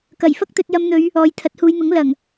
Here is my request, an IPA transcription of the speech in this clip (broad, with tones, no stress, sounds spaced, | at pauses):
k ɐ˨˩ j f ɐ˥ k̚ t̪ ɵ˧ t̚ j ɐ˧ m n̪ ɵ˨˧ ɥ | ɔː˨ j t̪ʰ ɐ˨˥ t̚ h uː˨˧ j n̪ ʊ˨˥ ŋ l ɐ˨˩ ŋ